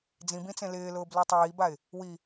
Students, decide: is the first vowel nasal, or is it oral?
nasal